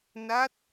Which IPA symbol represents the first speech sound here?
n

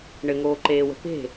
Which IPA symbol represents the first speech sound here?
ɳ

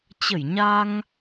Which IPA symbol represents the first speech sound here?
t͡ɕ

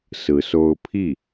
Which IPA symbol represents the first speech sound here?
s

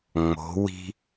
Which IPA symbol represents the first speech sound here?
ŋ͡m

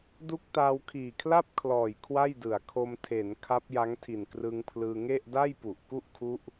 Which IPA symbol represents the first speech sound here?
d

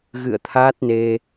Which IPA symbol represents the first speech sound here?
ɣ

